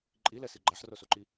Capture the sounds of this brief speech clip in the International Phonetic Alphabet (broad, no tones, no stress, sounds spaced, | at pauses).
ǃʼ i l ɛ s i ɡ͡ǃ a ħ r o s o ǃ i